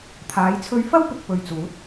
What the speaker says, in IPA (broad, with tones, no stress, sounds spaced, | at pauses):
t̪ʰ aː˨˧ j t͡sʰ ɵ˧ ɥ f ɐ˥ w p ɪ˨ k̚ p ɵ˨ ɥ t͡s uː˨˥ t̚